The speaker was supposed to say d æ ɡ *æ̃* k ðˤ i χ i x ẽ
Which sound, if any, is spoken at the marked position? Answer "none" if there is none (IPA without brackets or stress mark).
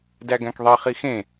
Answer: æ̃